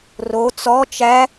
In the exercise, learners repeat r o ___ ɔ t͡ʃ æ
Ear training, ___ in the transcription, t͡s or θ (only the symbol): t͡s